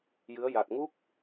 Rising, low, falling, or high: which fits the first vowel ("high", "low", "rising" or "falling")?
rising